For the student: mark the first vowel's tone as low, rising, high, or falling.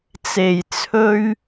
low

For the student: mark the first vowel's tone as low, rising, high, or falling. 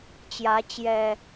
rising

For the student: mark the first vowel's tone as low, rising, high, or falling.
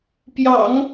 low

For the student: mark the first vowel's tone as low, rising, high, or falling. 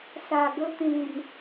low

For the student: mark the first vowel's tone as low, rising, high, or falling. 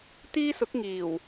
high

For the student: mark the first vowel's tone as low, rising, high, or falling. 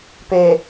low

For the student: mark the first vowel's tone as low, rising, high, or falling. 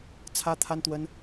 high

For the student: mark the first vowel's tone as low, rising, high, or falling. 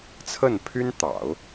falling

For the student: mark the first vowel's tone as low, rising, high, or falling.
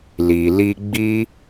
low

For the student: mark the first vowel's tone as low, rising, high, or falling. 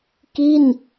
falling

